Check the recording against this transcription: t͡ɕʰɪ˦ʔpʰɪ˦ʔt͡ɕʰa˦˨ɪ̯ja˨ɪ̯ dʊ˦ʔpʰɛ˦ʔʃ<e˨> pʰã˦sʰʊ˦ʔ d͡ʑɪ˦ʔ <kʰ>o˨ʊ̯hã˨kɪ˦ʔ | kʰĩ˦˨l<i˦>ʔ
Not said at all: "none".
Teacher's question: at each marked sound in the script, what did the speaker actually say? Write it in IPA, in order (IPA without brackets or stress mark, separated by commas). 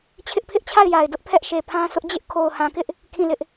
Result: e˨, kʰ, ɪ˦